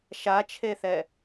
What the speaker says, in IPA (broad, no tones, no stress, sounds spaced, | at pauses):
ʃ a t͡ʃʰ e θ ɛ